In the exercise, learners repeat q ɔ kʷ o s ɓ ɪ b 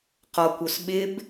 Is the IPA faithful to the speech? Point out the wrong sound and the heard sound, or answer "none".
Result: none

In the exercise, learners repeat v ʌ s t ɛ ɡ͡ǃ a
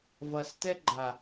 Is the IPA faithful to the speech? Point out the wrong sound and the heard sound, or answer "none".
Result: none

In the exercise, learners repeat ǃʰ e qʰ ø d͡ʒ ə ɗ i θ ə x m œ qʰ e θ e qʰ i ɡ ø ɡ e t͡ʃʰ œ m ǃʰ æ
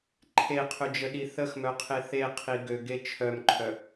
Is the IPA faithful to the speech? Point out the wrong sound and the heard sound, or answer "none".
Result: æ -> œ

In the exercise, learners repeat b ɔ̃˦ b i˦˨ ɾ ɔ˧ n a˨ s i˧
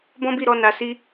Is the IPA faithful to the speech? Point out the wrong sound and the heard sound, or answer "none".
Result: none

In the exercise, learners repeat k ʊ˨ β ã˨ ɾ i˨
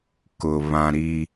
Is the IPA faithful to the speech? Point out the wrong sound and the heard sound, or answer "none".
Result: none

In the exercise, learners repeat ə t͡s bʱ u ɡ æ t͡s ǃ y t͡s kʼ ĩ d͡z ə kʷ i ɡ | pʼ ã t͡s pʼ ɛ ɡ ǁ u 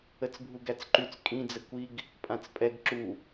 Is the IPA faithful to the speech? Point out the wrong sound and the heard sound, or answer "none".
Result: none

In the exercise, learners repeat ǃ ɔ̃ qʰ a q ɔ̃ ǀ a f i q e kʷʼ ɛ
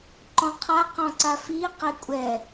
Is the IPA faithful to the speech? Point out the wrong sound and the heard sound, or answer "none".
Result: none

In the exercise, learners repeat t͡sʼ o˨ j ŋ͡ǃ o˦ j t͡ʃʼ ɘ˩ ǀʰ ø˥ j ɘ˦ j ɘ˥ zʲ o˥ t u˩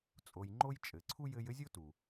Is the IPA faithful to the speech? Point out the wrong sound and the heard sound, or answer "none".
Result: ø˥ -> u˥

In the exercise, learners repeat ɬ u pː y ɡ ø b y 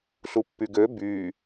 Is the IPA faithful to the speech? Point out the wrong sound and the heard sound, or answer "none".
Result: none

